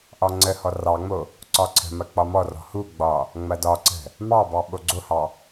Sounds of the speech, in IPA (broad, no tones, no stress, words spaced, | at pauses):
ʔɒŋ͡ǀəhɔ rɑŋ͡mo | ǀɒǀʰə̤mɐ k͡pɒmɔrɔ̤ huɡ͡bɒ | ŋ͡mɐdɒǀə̤ | mɑbɑ ɓoɡ͡ǀohɑ